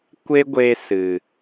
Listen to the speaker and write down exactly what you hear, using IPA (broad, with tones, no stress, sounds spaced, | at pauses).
kʷ e˦ ɡʷ e˧ s ɨ˨